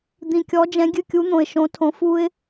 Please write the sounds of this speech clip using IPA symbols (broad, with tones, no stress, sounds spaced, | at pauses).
d̪ ĩ˨˩ kʲ ɔ˨˥ d͡ʒ ɛ̃˨˥ ɡʲ ɨ˦˨ kʲ u˨˥ n̪ õ˨˩ ɪ̯ ʃ õ˨˥ tʰ õ˨˥ f u˦ ɪ̯